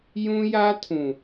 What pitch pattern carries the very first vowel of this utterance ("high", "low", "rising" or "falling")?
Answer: high